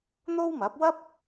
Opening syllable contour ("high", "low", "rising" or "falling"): high